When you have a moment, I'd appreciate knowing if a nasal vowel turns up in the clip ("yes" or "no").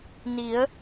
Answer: no